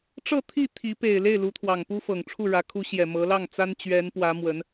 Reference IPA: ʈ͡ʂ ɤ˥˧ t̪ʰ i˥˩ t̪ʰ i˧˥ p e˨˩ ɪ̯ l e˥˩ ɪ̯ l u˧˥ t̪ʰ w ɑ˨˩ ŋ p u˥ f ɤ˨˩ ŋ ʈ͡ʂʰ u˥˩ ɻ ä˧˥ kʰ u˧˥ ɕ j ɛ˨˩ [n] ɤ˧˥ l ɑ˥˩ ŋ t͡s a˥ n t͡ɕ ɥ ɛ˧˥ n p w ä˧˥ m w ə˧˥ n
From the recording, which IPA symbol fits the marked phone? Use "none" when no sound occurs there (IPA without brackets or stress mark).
m